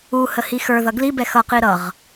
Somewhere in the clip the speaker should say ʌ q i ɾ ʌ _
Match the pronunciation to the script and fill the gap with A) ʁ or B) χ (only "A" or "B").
A